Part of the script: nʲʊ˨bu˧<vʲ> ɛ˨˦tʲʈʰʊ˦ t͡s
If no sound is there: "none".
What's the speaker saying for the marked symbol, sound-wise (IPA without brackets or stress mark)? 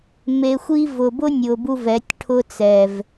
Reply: v